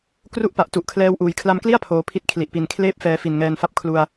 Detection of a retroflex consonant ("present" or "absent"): absent